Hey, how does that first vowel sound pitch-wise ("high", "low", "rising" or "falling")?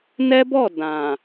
high